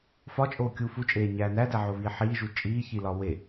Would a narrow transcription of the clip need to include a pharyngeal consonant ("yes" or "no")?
yes